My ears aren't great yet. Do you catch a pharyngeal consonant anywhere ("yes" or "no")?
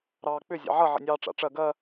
yes